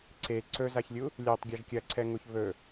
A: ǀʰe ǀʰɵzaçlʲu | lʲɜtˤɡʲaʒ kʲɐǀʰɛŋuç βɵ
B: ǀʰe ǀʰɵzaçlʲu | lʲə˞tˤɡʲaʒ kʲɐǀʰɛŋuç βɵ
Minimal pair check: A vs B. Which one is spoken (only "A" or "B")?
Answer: A